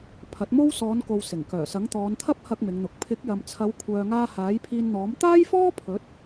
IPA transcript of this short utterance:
pʰ ɐ˨˥ t̚ m o˥ w s ɔː˨˧ n k o˨ w s ɪ˨˩ ŋ k œː˨˩ s ɐ˨˥ ŋ t̪ ɔː˨˧ n t̪ʰ ɐ˥ p̚ h ɐ˧ k̚ m ɪ˨˧ ŋ n̪ ʊ˨ k̚ pʰ ɪ˨˥ k̚ j ɐ˨ m t͡sʰ ɐ˨˧ w kʷʰ œː˨ ŋ aː˧ h aː˨˥ j pʰ iː˧ n n̪ ɔː˨˥ m t̪ aː˥ j f ɔː˥ pʰ ɵ˨˥ t̚

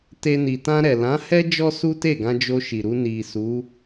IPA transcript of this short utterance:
t e˦ n i˧ t ã˧ ɾ ɛ˨ l ã˨˦ h ɛ˦ d͡ʒ ɔ˦ s u˦ t e˦˨ ɡ ã˧ d͡ʒ o˧ ʃ i˨ ɾ u˧ n i˨ s u˨˦

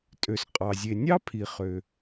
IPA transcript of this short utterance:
tʼ ø˩ s qʼ ɑ˩ zʲ e˩ nʲ ɑ˥ pʰ i˩ χ ø˩

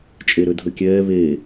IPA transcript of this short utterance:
t͡ʃʼ e ɾ ø dʱ ə kʲ ɛː β e

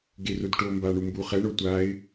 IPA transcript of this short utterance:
ɡ e r o d ʈ o m b a ɳ u m b u χ ɛ ɳ o tʷ a ɪ̯

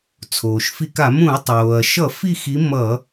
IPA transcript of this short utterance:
t͡sʰ oː˩ ʃ f i˧˩˧ k a˧˩˧ m ũ˧˩˧ ɐ̯ tˤ oː˩ ɐ̯ ʃ ʌ˧˩˧ f i˥˩ x i˨˥ m ʌ˧˩˧

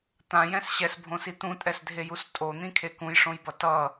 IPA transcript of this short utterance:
t̪ ã j ɛ̃ s ɕ ɛ s bʱ õ s i t̪ ũ tʼ ɛ s dʱ e j u s tʼ o n̪ ĩ kʰ e k ũ j ʂ õ j b ʌ t ʌ

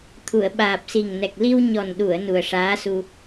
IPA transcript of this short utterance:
t̪ʰ u˨˩˨ ə̯ ɓ aː˨˩ p̚ s i˨˩ ŋ n ɛ˨˩ k̚ l i˧ w ɲ ɔ˨˩ n ɗ u˨˩˨ ə̯ n u˨˩ ə̯ ʂ aː˧˥ s u˧

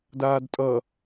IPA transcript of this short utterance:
d aː d tʼ ʌ

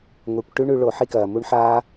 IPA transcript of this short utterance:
ŋʷ e˨˩˦ kʷ ʈ ʉ˦˥ ɳ ʉ˨˩˦ ɭ o˨˩˦ ħ i˥˧ k ɐː˩ m u˦˥ ɳ ħ aː˦˥

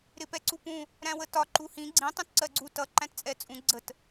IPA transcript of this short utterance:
ɾ ɪ p ɛ ǀ u p ũ | ɾ æ̃ w ə t ɒ ǃ u h ĩ ɡ͡ǀ ĩ tˤ ũ t ǀ ɜ ɡ͡ǀ u t ʌ ǃ æ̃ t t͡sʼ ɛ t͡sʼ ũ ɡ͡ǀ ə t

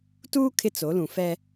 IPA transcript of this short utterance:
t uː˦ kʰ ɪ˦ t͡s o˨˦ l ũ˨ f ɛ˦

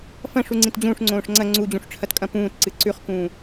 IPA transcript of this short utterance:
f ɐ̃ ʂ u ŋ͡ǀ ĩ t d͡ʑ ũː ʂ ŋ͡ǀ õː ʂ ŋ͡ǀ ɐ ŋ͡ǀ u d͡ʑ ũ ʂ ʈ͡ʂʰ ɐ t kʼ ɐ̃ p ũː t ǀ ɨ ǀ ʉ χ k ũː

